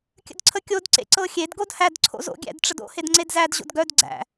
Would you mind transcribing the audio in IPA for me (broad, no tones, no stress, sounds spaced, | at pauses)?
kʲ ə̰ d ǀʰ ə kʲ o d ǀ ḛ ǀ ɤ xʲ e d ɡ o d h æ d ǀʰ o̰ z o̰ ɡʲ æ̰ d ʈ͡ʂ ə d o̰ h e d ŋ͡ǀ e d z æ d ʑ o̰ d ɡ œ d ɡ͡ǀ æ̰